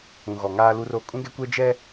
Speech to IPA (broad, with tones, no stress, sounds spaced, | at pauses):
ũ˨ ɣ ɔ˨ ŋ aː˦ l u˦ r o˦ kʼ ũ˦ ɡ ɛ˦ kʷ ɛ˦ d͡ʒ ɛ˦